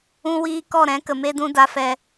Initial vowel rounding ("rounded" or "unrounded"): rounded